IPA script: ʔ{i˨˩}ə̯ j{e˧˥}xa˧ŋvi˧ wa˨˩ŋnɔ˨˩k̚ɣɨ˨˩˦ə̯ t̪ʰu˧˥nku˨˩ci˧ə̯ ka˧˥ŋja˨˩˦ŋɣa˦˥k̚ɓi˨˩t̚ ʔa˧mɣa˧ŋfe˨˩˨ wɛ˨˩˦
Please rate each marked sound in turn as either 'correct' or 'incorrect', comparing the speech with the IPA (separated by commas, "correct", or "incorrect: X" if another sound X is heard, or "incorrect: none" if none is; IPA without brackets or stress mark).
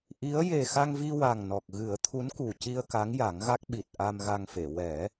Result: incorrect: i˧˥, incorrect: e˨˩